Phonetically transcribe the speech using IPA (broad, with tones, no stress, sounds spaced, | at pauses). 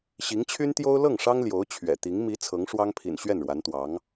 ɕ i˧˥ ŋ t͡ɕʰ y˥ n t̪ j o˥ ʊ̯ l ɤ˥˩ ŋ ʂ ɑ˥ ŋ l j o˧˥ ʊ̯ t͡ɕʰ ɥ ɛ̰˨˩ t̪ i˧˥ ŋ m i˧˥ t͡sʰ ɤ˧˥ ŋ ʂ w ɑ˥ ŋ pʰ ḭ˨˩ n ɕ ɥ ɛ˥˩ n ɻ w a˧˥ n t̪ w ɑ˧˥ ŋ